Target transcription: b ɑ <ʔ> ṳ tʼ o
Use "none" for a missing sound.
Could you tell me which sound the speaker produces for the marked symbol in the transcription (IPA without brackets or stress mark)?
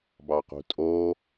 q